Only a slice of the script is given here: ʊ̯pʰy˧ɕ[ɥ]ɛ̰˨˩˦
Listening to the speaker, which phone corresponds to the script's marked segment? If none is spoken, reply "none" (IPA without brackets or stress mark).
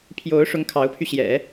j